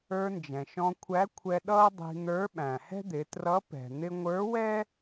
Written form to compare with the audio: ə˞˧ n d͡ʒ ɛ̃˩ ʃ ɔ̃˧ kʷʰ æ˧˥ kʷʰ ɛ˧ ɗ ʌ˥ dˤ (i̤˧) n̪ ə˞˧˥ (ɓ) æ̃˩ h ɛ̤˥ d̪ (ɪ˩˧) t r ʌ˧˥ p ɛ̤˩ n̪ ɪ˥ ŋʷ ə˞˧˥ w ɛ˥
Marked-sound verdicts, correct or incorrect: correct, correct, correct

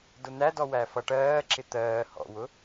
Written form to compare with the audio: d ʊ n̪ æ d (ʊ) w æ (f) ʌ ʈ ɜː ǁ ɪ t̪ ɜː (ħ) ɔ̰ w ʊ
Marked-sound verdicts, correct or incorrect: incorrect: ɔ, correct, incorrect: h

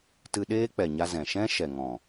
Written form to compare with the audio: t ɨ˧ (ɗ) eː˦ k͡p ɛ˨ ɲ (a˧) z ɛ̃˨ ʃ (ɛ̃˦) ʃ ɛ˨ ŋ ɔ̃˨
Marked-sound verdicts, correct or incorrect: correct, correct, correct

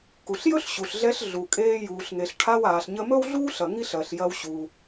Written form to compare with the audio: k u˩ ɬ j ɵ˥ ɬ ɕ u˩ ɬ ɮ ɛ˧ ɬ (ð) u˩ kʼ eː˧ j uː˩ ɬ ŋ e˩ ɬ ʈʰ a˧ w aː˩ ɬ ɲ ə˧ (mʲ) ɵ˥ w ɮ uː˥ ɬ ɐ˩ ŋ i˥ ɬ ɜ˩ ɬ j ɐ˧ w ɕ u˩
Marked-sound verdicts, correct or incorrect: incorrect: ɮ, incorrect: m

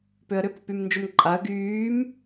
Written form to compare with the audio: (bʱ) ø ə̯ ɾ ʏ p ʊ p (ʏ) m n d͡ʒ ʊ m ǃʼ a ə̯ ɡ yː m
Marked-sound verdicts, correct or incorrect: incorrect: p, incorrect: y

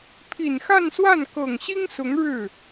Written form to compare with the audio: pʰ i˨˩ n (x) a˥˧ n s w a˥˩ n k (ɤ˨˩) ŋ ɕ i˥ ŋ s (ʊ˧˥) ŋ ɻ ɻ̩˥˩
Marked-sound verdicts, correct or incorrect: correct, correct, correct

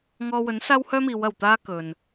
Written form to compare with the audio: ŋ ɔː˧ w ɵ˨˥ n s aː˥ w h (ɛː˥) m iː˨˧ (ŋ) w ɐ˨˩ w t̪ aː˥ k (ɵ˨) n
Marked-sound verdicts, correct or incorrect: incorrect: œː˥, incorrect: none, correct

